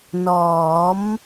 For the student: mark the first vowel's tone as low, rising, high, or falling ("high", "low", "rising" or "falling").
rising